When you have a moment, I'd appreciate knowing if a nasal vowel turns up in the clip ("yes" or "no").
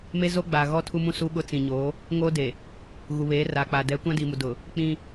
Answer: yes